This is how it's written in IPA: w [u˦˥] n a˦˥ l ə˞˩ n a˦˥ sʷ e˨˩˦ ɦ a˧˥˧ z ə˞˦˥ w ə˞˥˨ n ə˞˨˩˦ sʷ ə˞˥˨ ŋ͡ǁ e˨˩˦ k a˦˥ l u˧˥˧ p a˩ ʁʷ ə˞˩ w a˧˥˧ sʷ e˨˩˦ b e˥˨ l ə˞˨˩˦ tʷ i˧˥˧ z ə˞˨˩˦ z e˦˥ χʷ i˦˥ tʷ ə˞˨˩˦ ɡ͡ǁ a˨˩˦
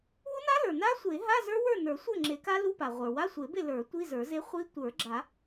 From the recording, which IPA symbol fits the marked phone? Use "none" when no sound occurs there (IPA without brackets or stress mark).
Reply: u˦˥